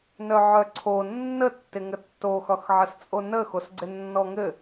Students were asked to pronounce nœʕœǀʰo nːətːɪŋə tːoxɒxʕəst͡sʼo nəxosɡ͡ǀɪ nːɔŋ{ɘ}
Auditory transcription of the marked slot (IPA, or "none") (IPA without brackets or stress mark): ɘ